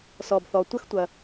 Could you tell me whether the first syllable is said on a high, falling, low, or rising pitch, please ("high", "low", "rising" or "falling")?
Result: low